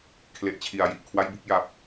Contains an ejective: no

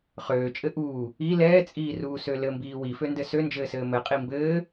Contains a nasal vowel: no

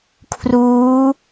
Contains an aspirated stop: yes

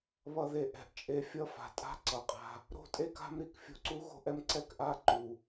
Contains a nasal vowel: no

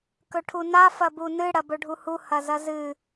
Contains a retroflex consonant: yes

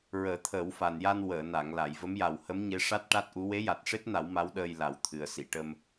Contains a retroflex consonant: yes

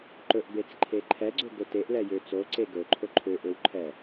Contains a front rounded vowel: yes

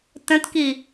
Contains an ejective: no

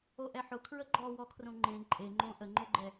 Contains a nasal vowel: yes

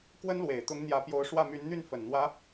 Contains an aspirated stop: no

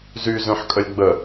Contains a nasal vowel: yes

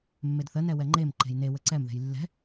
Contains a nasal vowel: no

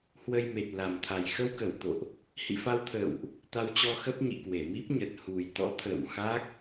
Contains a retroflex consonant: no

